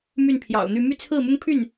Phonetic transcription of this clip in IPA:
m y˥˩ n pʰ j ɑ̰˨˩ ʊ̯ n̪ y˥˧ m y˥˧ t͡sʰ ɹ̩˥˩ m ʊ˥ ŋ pʰ y˥˩ n

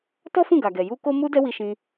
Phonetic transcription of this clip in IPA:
t ɔ˦ f ũ˦˨ ɡ a˨ ɡ ɛ˨ j u˧ k o˦ m u˦ d ɛ˦ w i˧ ʃ ĩ˧

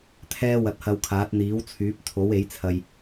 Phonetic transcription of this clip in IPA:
t̪ʰ ɛː˥ w ɐ˧ t̚ h ɐ˧ w kʰ aː˨˥ t̚ n̪ iː˨˥ w t͡sʰ yː˨˥ p̚ t̪ʰ o˨˥ w e˨˥ j t͡sʰ ɐ˨ j

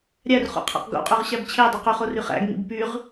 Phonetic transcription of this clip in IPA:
ɾʲ æ r χ ṵ qʰ æ̰ q ɡ o̰ qʼ ø ʁ ɕ æ b t͡ɕʰ e dˤ y q y χ o r y χ æ̰ ɡ ŋ ḭ b p y ʁ

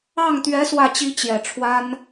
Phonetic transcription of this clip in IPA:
ɑ˥˩ ŋ t̪ ɥ ɛ˧˥ s w ä˥˩ t͡ɕ i˥ t͡ɕ j ɛ˨˩ ʈ͡ʂʰ w a˥ n

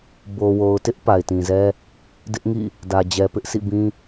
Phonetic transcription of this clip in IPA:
b o˨ w o˨ ʊ̯ t ɪ˦ ʔ p a˨ ɪ̯ t ĩ˨ z ɛ˦ | d ɪ˦ ʔ ŋ ḭ˦˨ | d ä˨ d͡ʑ ɛ˨ p ɪ˦ ʔ sʰ ḭ˦˨ b ĩ˦

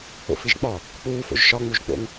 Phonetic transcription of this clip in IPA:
o̰ f i ʒ k͡p ɒ | k͡p uː f o̰ ʒ ʃ ɒ ŋ͡m u ʒ k͡p o̰ ŋ

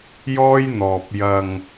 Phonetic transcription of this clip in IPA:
j ɔː˥ j n̪ ɔː˧ p̚ j ɐ˧ ŋ

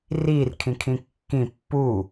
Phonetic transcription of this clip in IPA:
r iː r kʰ ĩ kʰ ĩ kː ĩ pː u

